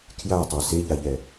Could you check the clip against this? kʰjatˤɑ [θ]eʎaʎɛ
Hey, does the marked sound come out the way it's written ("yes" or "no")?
no